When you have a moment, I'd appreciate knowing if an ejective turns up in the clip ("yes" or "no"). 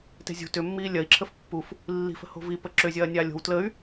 no